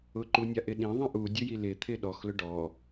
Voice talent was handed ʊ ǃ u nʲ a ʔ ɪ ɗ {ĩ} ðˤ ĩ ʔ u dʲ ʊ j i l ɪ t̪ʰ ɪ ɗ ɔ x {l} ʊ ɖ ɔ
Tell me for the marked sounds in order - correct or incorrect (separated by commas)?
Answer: correct, correct